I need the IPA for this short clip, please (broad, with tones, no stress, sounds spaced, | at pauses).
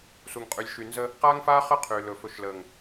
s u˨ ŋ qʼ y˨ lʲ ʃ y˨ n z ə˦ | q aː˦ ŋ f aː˦ χ əː˦ qʰ yː˨ l ɵ˨ f ɵ˨ ʃ l əː˨ ŋ